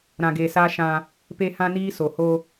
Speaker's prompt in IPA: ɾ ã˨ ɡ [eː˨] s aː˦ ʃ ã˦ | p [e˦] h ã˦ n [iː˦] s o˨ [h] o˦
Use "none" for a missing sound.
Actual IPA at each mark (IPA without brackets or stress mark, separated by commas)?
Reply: eː˨, e˦, iː˦, h